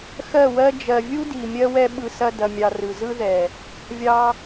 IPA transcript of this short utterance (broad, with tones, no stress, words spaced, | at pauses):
xɜ˦˨wɜ˦ d͡ʒɜ˨vʲu˦di˨ mʲɜ˦wɛ˦ɓɯ˧ sɐ˦ dɐ˧mʲɑ˧ rɯ˨zɯ˦ðɛ˨ | vʲɑ˧